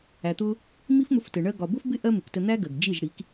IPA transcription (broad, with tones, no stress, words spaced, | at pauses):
æ˨t̪ʊ˦ | mi˦fmʊ˧ftə˨ ɳɜ˧ɡɒ˨bʊ˦fbɪ˦ ʔɜ˦mɪ˨ktə˧ n̪æ˦ɡɜ˨ɡ d͡ʒi˦˨ʒɽi˨˦k